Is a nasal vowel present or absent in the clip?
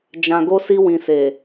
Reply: present